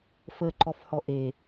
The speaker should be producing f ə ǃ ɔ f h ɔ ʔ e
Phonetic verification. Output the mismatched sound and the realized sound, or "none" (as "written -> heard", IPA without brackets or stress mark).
none